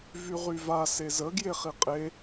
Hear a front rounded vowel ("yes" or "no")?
yes